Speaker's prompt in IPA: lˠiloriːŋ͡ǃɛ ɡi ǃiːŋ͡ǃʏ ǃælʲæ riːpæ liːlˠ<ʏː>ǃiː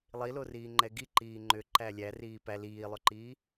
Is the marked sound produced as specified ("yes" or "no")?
no